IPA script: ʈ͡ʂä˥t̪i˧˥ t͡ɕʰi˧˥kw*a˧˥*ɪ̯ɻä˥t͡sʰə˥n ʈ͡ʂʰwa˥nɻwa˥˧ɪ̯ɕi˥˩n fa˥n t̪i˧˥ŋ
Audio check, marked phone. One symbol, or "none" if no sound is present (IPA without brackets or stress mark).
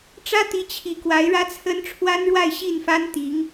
a˧˥